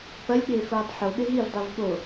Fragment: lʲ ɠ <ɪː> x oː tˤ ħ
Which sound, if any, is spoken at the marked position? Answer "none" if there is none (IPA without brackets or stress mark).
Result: ɪː